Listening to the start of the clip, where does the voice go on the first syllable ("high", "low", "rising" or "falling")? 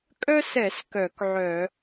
high